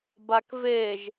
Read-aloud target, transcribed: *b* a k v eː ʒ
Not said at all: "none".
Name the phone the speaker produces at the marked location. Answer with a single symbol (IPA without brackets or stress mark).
b